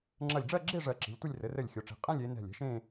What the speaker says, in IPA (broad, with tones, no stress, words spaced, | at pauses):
ŋ͡ǁɐ˧˩lʲɖ͡ʐɜ˥˧ɡ͡ǁe˥˧ ʐɜ˧˩ǁi̤˩˧lʲtʷɪ˥˧lʲ rɘ˩˧rɘ˧˩lʲ xʲo˩˧ʈ͡ʂi̤˩˧ qʼɛ̃˥˧lʲe˩˧ nɛ̤˧˩lʲɛ̤˧ʃẽ˥˧